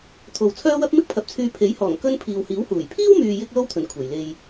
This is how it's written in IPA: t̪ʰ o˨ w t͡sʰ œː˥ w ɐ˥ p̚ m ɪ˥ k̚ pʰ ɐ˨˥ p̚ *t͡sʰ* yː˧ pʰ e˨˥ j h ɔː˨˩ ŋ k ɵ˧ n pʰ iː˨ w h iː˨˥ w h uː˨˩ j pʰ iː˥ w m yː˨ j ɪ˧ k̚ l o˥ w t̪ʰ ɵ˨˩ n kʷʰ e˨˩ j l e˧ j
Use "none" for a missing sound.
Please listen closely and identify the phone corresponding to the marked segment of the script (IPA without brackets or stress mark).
t͡sʰ